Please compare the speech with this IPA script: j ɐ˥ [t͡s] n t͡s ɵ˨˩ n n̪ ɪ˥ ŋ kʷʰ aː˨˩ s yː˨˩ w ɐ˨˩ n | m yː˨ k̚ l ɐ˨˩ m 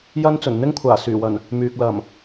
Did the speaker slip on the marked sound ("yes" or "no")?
yes